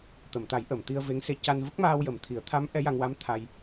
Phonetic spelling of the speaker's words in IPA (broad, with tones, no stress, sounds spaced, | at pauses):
t̪ ə˨˩˨ m t̪ a˨˩˦ j ʔ ə˨˩˨ m t̪ i˧ ə̯ v e˧˥ ŋ s e˧ c a˧ n v ə˦˥ k̚ m aː˧ w j ə˨˩ m t̪ʰ i˨˩˦ ə̯ t̪ʰ a˧˥ m ʔ ɛ˧˥ j a˧ ŋ w a˧˥ m t̪ʰ a˧ j